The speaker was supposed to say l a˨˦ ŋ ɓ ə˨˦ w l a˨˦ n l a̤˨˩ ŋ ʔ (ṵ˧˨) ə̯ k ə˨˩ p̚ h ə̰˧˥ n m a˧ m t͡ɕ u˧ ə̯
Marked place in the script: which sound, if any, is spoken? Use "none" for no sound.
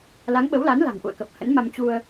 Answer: ṵ˧˨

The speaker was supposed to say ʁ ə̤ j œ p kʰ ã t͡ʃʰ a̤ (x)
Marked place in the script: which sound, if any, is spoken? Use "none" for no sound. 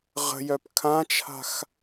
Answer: x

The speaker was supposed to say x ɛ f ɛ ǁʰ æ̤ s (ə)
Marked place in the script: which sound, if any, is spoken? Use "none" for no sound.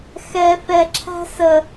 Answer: ə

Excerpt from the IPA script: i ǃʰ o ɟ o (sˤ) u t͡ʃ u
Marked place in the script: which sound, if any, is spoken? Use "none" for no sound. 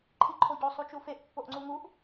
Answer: sˤ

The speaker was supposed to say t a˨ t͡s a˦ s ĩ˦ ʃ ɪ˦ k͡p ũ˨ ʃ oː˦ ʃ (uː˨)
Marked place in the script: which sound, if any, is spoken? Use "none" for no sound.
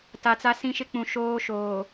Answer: oː˨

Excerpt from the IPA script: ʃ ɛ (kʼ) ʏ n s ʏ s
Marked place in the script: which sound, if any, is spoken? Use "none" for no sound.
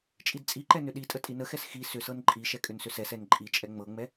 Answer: kʼ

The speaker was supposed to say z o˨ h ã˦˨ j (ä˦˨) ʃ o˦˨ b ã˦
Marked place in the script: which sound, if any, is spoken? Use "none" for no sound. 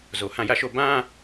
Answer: ä˦˨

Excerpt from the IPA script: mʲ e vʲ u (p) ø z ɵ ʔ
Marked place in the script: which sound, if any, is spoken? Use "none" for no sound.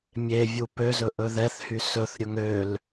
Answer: p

